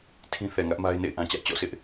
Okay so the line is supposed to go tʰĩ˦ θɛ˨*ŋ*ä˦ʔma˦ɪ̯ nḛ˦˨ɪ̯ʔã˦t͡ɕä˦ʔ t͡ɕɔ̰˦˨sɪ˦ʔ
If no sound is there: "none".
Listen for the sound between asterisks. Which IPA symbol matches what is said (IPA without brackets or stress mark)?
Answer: ŋ